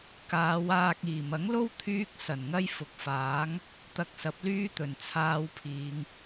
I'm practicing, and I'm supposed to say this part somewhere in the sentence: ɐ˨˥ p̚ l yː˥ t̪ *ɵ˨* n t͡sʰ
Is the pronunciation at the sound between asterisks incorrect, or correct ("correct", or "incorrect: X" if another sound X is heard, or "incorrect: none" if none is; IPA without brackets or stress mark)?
incorrect: ɵ˨˩